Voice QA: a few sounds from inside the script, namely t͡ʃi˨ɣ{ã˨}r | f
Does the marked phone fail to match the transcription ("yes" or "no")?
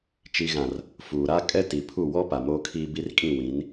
no